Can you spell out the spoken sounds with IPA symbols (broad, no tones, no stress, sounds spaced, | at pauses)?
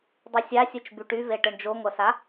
dˤ y sʲ a sʲ ɯ t͡ʃ b y ʈ y v e ʈ ɯ ɳ d͡ʒ o ŋʷ ɐ s a